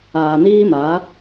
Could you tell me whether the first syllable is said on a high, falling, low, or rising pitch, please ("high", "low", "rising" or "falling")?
low